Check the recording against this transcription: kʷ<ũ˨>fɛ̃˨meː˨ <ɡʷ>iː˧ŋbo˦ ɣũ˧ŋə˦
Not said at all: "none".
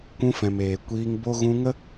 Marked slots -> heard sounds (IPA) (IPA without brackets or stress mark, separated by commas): ũ˧, kʷ